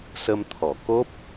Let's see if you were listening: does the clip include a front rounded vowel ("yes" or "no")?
no